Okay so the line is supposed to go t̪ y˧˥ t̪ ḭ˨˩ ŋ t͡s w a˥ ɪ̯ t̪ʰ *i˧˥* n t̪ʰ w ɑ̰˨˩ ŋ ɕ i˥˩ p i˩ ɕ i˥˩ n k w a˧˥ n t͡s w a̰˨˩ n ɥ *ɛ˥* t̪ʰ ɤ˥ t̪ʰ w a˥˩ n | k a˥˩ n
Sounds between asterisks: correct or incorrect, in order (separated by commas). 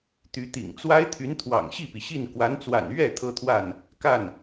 incorrect, incorrect